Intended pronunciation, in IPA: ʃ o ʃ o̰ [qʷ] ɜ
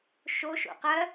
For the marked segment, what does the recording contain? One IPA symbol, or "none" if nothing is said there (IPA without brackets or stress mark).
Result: q